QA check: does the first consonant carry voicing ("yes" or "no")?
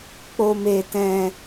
no